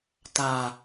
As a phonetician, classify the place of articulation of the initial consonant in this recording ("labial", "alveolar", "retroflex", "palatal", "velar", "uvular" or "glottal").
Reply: alveolar